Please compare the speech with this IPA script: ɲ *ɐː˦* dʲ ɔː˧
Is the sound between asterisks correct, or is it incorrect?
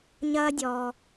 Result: correct